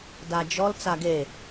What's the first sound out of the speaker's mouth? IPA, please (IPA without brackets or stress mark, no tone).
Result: d